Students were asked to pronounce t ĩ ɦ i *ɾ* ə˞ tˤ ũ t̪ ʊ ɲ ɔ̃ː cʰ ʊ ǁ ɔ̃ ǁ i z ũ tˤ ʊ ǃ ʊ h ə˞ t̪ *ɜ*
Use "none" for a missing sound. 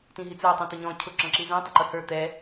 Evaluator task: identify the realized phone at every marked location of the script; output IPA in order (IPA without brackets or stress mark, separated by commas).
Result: t͡s, ɛ